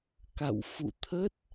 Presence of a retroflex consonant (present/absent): absent